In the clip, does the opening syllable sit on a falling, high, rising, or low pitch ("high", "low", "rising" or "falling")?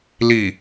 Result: low